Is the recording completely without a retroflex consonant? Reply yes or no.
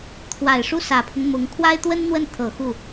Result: no